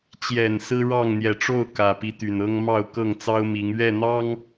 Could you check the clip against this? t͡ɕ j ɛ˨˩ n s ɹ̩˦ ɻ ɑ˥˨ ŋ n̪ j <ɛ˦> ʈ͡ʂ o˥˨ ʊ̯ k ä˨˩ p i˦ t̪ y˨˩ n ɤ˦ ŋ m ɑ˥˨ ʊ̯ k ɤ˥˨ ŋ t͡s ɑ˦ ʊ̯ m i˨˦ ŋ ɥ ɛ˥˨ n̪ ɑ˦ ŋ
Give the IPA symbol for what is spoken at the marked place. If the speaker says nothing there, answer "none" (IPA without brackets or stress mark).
ɛ˨˩